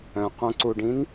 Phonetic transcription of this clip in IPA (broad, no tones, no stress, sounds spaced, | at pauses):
œ̃ q õ ǀ u ɖ ĩ n